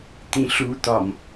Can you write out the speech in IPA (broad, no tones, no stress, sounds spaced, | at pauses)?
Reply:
t̪ ĩ ɬ u t̪ ɒ m